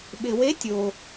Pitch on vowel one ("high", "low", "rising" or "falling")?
low